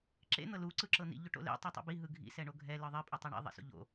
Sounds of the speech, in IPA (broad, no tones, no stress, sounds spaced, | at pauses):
ǁ ḛ n̪ ɤ l u ǀ ɯ ǁ ɤ n̪ ḭ ʎ o ʈ o̰ l ḛ tˤ ɯ tˤ ṵ b i ɦ ɯ ɡʱ ḭ s ɛ ɳ o ɡʱ ɛ l ɯ ðˤ i pʼ ɛ tˤ e ɳ ḭ ðˤ ɛ̰ s o̰ ʎ o̰